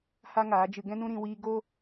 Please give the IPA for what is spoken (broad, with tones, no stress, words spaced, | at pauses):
ha˦ŋaː˨˦d͡ʒɨ˧ ɡɛ̃˦nũ˦ɾĩ˧ wiː˧ ɡo˦